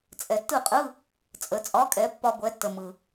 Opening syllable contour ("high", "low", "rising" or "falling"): low